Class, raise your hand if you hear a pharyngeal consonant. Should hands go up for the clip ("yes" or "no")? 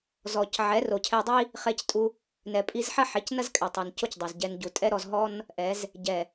yes